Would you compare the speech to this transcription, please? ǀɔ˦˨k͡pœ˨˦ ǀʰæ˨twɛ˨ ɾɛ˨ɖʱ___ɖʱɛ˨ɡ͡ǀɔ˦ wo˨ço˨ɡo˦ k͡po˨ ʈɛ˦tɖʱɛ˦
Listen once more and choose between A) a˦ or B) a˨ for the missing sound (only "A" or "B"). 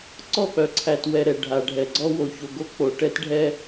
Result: B